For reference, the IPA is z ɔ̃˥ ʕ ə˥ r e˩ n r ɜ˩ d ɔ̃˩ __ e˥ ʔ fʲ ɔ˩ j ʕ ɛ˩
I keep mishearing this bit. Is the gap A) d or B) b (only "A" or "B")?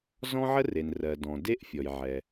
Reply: A